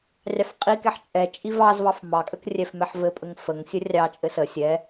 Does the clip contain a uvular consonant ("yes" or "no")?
yes